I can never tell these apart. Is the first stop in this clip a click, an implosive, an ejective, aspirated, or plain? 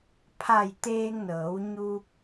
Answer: aspirated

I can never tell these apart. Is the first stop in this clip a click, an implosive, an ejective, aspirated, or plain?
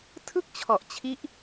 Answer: aspirated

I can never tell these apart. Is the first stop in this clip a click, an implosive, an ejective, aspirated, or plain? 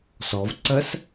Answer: click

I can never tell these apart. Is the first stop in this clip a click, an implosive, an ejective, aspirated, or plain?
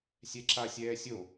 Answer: click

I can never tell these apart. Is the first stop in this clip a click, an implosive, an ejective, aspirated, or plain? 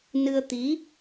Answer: plain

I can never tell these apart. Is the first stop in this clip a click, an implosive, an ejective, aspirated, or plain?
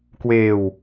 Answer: plain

